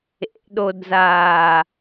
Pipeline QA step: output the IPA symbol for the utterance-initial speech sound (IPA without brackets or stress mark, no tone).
ḛ